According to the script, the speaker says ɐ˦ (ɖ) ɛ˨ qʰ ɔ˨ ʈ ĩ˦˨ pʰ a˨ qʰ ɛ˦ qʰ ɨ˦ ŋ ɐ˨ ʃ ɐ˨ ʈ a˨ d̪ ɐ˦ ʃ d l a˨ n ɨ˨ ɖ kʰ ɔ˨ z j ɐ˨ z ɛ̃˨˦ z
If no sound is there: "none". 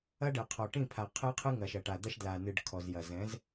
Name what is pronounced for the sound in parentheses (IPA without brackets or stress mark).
ɖ